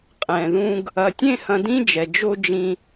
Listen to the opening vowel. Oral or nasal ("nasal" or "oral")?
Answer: nasal